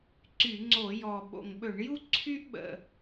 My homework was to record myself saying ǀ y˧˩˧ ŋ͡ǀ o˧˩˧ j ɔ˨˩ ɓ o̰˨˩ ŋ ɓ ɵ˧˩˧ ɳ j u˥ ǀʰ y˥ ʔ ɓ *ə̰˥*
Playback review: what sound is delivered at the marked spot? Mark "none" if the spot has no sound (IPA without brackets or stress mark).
ə̰˨˩